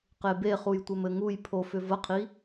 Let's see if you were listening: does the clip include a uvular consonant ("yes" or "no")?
yes